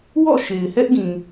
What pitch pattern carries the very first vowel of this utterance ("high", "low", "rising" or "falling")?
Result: falling